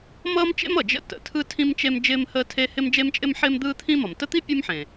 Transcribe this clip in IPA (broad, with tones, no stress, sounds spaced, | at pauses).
m ʌː˥ m t͡ʃ ḛ˥ m ʌ˩ d͡ʒ ə̰˥ t ə̰˩ tʰ ɯ˥ tʰ ĩ˥ m t͡ʃ e˥ m d͡ʒ ɪː˥ m h əː˥ tʰ e˥ h ɪ˥ m d͡ʒ e˥ m t͡ʃʼ ɪ˥ m ħ ɪː˥ m d̪ ɯː˥ t̪ʰ ĩ˥ m ʌ˩ m t ə˥ t̪ i˥ pʲ ɯ˥ m ħ ẽ˩